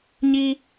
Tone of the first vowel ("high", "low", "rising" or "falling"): high